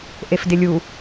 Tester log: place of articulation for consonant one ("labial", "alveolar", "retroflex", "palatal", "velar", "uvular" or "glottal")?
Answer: glottal